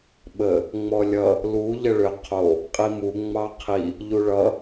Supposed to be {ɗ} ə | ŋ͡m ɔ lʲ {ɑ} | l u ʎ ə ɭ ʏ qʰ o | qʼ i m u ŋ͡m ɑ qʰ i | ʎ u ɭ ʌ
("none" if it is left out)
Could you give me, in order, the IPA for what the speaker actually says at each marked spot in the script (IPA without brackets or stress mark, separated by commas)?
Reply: ɓ, ʌ